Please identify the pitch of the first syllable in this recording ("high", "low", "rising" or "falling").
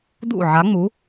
falling